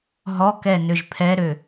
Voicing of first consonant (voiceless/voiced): voiced